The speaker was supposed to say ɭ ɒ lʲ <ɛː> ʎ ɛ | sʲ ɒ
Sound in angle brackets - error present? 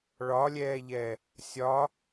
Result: no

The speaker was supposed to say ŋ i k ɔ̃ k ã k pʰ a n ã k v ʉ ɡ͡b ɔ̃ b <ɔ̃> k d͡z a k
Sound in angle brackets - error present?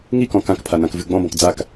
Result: no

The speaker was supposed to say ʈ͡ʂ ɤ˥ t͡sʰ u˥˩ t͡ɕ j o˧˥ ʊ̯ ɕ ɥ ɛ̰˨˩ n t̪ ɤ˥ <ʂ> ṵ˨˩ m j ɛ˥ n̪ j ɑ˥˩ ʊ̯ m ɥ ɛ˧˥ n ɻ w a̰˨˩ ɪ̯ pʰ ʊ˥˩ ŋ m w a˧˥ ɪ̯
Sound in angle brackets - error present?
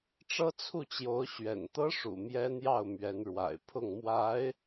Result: no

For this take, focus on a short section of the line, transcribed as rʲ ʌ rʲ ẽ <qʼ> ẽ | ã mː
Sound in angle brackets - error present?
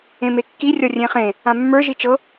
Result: yes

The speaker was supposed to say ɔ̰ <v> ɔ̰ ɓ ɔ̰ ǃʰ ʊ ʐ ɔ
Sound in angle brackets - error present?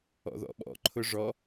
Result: yes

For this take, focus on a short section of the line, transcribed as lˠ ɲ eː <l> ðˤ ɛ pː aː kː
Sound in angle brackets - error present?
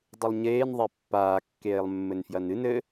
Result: yes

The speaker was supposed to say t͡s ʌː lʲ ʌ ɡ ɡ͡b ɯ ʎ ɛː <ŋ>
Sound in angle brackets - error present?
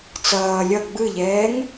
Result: no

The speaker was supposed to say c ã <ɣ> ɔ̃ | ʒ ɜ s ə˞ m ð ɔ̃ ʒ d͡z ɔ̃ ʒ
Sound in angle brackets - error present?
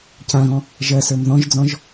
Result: no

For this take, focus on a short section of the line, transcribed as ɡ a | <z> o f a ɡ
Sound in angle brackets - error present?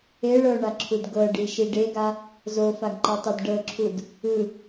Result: no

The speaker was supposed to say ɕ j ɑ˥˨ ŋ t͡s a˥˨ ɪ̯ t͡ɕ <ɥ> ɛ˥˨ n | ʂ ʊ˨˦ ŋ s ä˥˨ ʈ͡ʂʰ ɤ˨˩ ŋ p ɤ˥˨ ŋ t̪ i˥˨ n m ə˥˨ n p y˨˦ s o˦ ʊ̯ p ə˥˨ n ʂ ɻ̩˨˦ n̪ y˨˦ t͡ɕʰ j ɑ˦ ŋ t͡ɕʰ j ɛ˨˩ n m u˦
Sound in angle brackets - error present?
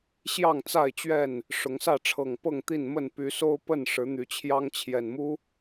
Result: no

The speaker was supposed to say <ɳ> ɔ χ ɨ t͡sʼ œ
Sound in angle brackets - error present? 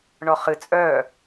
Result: no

